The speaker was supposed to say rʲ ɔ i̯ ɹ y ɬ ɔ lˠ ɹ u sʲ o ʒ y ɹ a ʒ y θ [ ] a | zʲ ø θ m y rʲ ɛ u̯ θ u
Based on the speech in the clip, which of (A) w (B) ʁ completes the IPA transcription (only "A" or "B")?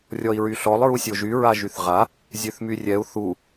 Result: B